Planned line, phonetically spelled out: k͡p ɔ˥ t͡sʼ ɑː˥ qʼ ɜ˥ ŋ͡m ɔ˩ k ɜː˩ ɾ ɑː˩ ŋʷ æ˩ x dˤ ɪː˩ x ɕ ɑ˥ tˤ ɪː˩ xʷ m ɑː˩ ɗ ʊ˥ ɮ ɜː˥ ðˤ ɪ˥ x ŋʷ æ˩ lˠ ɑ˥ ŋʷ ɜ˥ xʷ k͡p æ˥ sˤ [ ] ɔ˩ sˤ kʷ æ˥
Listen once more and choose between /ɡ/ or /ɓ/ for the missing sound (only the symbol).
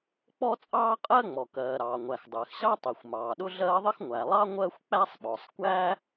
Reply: ɓ